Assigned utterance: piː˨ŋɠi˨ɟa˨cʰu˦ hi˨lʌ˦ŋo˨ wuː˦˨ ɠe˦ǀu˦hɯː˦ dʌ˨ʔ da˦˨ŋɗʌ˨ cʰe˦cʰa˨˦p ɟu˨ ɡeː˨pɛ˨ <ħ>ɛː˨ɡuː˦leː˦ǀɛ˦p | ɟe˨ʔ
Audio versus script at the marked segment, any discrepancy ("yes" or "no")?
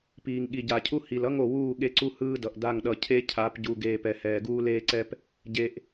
yes